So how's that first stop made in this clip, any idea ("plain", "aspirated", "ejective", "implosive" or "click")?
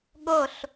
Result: implosive